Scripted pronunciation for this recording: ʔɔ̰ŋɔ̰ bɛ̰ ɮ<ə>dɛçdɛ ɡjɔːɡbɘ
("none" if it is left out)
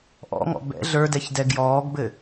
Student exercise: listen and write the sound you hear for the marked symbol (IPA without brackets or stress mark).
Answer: ə˞